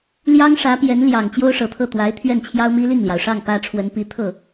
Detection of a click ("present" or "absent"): absent